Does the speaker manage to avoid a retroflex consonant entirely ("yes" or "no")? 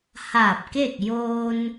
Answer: yes